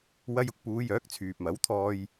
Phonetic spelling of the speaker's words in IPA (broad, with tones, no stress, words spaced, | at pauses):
wɐ˧jʊ˧k̚puː˨˧jœː˨˥k̚ t͡sʰyː˨p̚mɐ˨˥wt̪ʰɔː˧j